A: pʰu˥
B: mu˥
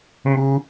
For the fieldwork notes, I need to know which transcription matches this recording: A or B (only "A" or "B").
B